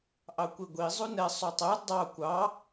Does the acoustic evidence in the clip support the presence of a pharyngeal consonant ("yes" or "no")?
no